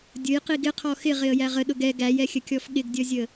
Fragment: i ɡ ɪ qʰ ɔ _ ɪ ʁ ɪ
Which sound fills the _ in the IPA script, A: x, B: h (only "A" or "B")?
A